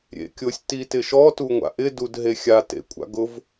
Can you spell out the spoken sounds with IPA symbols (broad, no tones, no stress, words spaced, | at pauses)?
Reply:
ɾʲḛkʲʊsʲ titɪʃɔ tuŋʷa̰ʔɪ dudɦexʲa tḛkʷʼa̰ɡʊv